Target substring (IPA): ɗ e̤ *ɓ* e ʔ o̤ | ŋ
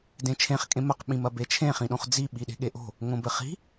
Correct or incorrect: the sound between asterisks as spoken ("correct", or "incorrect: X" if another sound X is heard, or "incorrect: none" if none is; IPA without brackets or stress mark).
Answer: incorrect: ɠ